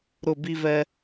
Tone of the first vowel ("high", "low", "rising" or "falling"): falling